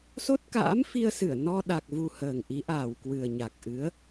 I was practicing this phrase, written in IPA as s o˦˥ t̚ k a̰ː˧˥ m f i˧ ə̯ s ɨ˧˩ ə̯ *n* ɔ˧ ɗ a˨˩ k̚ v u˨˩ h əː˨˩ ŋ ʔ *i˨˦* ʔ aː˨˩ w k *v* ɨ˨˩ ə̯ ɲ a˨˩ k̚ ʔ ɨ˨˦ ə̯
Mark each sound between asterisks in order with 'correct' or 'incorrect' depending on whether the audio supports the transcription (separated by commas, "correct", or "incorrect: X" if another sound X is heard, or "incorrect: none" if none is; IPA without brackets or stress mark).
correct, correct, incorrect: w